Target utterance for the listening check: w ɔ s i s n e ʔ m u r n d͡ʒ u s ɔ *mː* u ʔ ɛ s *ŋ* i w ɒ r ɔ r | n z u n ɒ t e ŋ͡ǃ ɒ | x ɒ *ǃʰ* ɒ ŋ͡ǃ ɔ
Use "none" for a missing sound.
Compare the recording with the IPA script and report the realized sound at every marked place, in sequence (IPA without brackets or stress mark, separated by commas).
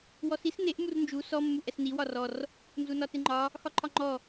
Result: mː, n, ǃʰ